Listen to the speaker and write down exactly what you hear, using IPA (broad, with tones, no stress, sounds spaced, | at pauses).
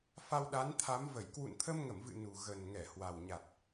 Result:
f a˧ w ɗ a˨˦ n t̪ʰ a˨˦ m v ə˧˩ j k w ṵ˧˨ n t̪ʰ ə˧ m ŋ ə˧˩ m v ɨ̰˧˨ n u˨˩ ɣ ə˨˩ n ŋ ɛ˧˩ h w a˨˩ w ɲ a˨˩ t̚